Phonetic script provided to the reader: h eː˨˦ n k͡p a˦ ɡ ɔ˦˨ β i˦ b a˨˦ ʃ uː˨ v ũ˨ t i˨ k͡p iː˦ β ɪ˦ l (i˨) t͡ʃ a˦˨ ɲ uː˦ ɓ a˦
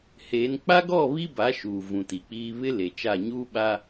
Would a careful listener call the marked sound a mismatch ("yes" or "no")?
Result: yes